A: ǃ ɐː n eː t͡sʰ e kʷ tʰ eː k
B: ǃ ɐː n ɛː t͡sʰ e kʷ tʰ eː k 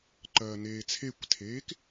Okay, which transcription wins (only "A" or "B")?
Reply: A